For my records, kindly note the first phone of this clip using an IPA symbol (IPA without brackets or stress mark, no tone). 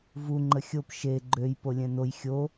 v